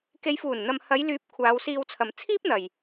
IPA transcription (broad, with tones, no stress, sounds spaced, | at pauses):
k e˨˧ j f uː˨˩ n n̪ ɐ˨ m h ɐ˨˧ j l yː˨˥ p̚ kʷʰ aː˨˧ w s iː˧ w t͡sʰ ɐ˨ m t͡sʰ iː˥ p̚ n̪ ɐ˨ j